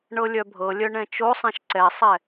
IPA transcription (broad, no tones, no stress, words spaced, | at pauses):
ɳɤlʲœbʱɤlʲœ ɳɛ̃t͡ʃosˤɛ̃ʃ ǀɛsˤɛ